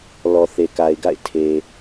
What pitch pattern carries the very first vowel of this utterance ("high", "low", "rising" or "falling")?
low